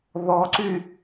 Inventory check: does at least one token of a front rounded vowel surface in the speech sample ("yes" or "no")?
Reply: yes